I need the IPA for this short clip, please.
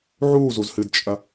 ʕ uː z u z h ɨ d t͡ʃʼ ɐ

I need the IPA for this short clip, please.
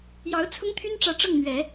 j ɑ˧˥ ʊ̯ t͡sʰ ʊ˥ ŋ t̪ʰ y˥ n ʈ͡ʂ ä˧˥ ʈ͡ʂ ɤ˥˩ ŋ n̪ ɥ ɛ˨˩˦

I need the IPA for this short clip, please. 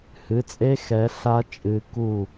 h ɨ˩˧˩ t͡sʼ e˦˥ x ɛ˨˦ ɬ a˦˥ t͡ʃʼ ɨ˨˦ k u˥˩

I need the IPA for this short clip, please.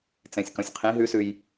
t͡s ɛ̃ sʲ k ɔ̃ sʲ qʰ ĩ ɦ ʉ s ʉ j

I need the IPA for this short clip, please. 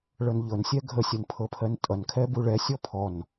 ɭ ɤ n ʎ ɤ n sʲ ɛ ɡʱ ə sʲ ɜ n pʰ ɤ pʰ ɜ n tʼ ʌ n kʰ ɛ b u ɭ ɛ sʲ ɔ pʰ ɔ n

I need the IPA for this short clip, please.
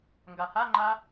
ŋ ɡ a h a ŋ͡ǃ a

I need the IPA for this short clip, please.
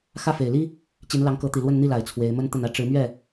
x ä˥˩ f e˨˩ ɪ̯ l i˥ | t͡ɕ i˧˥ n l ɑ˧˥ ŋ k ɤ˧˥ t̪ i˨˩ l w ə˥˧ n n̪ i˥˩ l a˨˩ ɪ̯ t͡sʰ w e˧˥ ɪ̯ m ə˥ n t̪ ə˥˩ n ä˥ ʈ͡ʂ ɻ̩˧˥ m ɥ ɛ˥˩

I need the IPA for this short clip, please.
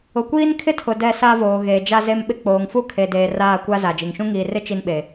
ʊ˨ kʷ iː˦ n kʰ ɪ˦ tʰ ʊ˨ d ɛ˦˨ s a˦ v oː˨ ɣ eː˨ d͡ʒ a˦ z e˦ m ɓ ɪ˦ k͡p oː˨ ŋ f u˦ kʰ e˨ d eː˨ r aː˦˨ kʷ a˦ z a˨ d͡ʒ i˨ ŋ ʃ ũ˦ ŋ iː˨ r ɪ˦ t͡ʃ i˦ n ɓ e˨

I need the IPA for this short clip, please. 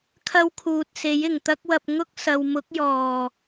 kʰ ɐ˥ w kʰ uː˨ t̚ s e˨˥ j ɪ˨˩ ŋ t̪ ɐ˥ k̚ w ɐ˧ p̚ ŋ ʊ˥ k̚ s ɐ˨ w m ʊ˨˥ k̚ j ɔː˨˩

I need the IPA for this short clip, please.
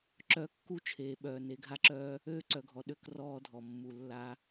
ǁ œ˦ kː u˦ t͡ʃʰ eː˨ ɓ œː˨ n e˨˦ ɡʱ a˦ ǁ œː˦ | øː˦ ǀ œ˨ ɡʱ ɔ˨ ɗ ø˦ k r ɔː˦ dʱ ɔ˨ mː u˨ lː a˦

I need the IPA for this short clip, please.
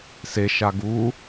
s e ʃ a ɡ u

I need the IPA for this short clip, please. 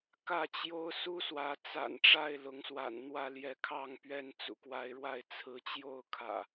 k ä˥˨ t͡ɕ j o˦ ʊ̯ s u˦ s w ä˨˦ t͡s a̰˨˩ n ʈ͡ʂ a˥˨ ɪ̯ l ʊ˨˦ ŋ s w a̰˨˩ n n̪ w ä˥˨ l j ɛ˨˦ kʰ ɑ˥˨ ŋ p ɥ ɛ˥˨ n t͡s ṵ˨˩ k w a˨˦ ɪ̯ ɻ w a˥˨ ɪ̯ t͡sʰ ɹ̩˨˦ t͡ɕ j o˥˨ ʊ̯ kʰ ä̰˨˩

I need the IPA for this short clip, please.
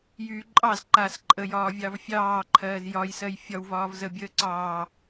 j yː ǃʼ ɑ z ǃ aː s ǃʼ ə j ɒː vʲ ɑ v fʲ ɑː ǃʰ ɜː z j ɒ j s ɜ j fʲ ɒ w v ɒː v z ə bʲ əː ǀ ɑː

